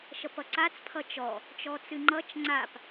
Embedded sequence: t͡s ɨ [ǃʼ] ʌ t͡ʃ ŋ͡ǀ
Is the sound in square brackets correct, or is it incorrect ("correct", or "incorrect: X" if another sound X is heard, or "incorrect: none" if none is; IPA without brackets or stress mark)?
incorrect: ŋ͡ǃ